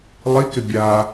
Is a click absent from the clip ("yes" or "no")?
yes